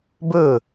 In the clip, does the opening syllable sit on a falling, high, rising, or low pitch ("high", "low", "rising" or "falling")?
falling